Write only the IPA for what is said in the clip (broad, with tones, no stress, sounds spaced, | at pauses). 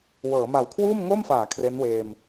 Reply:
w ɤː˩˦ m a˨˩ w kʰ w uː˥˩ m ŋ o˥˩ m f aː˩˦ kʰ r e˦˥ n w eː˧ m